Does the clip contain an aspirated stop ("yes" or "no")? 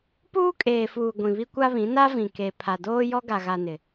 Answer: yes